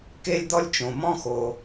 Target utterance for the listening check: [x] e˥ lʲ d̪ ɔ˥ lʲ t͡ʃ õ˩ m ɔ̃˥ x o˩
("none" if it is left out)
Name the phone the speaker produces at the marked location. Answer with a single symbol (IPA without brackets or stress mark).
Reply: k